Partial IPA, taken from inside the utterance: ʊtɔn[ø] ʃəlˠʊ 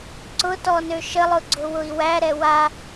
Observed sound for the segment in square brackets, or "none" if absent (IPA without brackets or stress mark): ø